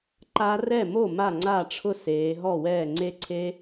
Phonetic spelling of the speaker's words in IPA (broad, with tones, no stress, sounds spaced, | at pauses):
ǃ a˦˥ r ɛ˥˩ m o˥˩ m a˥˩ ŋ͡ǀ a˥˩ ʈ͡ʂʰ ʊ˥˩ s eː˩˧ ɦ ɔ˥˩ w ɛː˥˩ ŋ͡ǀ e˦˥ ǀʰ e˦˥